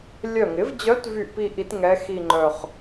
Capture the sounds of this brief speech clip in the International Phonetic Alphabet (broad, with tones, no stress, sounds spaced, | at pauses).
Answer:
lʲ œ˧˩ ŋ ɪ˩˥ v d͡ʑ œ˧˥ t v y˧˩ ʔ p i˥˧ ʔ i˧˥ t ŋ ɛ˧˥ x i˥˧ ŋ͡ǃ œ˧˩ χ